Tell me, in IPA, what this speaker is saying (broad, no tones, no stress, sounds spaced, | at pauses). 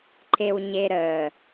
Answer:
ǃ e w ɲ e ɾ ə